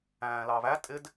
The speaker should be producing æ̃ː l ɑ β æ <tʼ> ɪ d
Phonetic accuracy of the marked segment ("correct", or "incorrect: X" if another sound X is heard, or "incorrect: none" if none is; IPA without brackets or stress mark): correct